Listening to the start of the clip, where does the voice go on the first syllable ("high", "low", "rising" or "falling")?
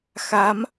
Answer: rising